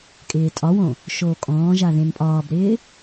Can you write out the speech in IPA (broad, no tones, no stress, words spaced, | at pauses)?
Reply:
kʼɪːtʼɒwõ | ʃoːkʼɔ̃ːʒa ðẽnpʼɒːbɾɪː